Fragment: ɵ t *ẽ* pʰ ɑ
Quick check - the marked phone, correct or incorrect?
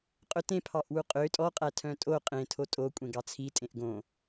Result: correct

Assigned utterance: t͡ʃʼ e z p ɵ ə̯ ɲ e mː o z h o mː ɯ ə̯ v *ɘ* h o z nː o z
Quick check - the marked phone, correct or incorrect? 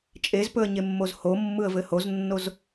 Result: correct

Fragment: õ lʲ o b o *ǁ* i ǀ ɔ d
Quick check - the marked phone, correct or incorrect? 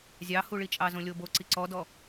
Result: incorrect: ǀ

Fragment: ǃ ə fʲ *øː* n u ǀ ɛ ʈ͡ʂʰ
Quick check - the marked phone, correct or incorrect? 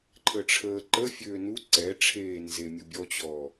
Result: correct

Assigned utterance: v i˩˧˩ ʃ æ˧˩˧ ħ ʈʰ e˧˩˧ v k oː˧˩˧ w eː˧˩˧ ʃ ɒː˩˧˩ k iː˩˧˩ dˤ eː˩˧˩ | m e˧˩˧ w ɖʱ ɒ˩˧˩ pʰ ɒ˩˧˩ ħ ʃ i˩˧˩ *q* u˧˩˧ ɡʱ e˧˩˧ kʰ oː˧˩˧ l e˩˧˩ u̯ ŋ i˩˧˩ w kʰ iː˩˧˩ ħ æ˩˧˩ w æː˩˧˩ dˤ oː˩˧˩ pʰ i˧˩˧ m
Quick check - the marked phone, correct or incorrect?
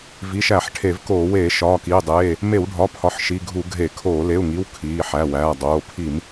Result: incorrect: ɡʱ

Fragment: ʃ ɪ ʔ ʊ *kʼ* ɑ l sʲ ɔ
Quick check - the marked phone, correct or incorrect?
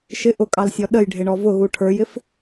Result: correct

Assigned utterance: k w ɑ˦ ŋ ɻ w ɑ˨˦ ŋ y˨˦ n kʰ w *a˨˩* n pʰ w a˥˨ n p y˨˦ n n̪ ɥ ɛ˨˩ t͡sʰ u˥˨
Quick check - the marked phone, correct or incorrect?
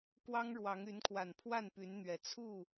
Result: correct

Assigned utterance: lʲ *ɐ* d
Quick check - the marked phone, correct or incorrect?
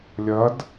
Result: correct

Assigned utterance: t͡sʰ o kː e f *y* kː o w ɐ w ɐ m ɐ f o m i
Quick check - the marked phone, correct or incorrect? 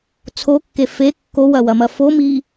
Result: incorrect: e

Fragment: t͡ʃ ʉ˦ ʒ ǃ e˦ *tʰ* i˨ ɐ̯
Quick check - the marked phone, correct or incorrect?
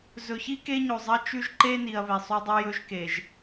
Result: incorrect: n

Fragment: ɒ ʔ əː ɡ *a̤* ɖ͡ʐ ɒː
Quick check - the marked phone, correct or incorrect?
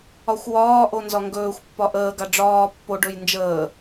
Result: incorrect: a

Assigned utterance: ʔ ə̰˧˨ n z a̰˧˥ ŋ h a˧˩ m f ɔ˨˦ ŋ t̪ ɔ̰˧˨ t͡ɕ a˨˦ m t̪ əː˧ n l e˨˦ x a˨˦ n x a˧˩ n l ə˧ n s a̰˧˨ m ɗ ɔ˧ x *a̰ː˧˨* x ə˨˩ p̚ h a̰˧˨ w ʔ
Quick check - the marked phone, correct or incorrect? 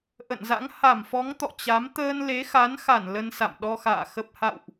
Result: correct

